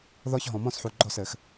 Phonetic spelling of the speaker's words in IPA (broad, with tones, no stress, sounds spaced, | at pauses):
ð ɔ˦ ç ɦ ɔ̃˨ m ɔ̃˦ s ħ u˨ ɡ͡ǃ ɔ˥˨ s ɘ˨˩˦ x